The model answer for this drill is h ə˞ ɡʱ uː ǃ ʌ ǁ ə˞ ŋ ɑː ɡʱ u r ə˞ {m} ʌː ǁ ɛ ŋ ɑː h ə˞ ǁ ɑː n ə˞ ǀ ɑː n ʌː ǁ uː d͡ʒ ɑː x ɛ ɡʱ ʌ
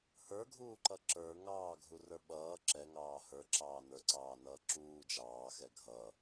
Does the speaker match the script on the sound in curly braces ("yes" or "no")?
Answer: no